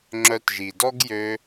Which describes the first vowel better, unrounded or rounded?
rounded